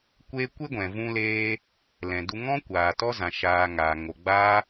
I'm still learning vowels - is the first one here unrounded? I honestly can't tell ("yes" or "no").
yes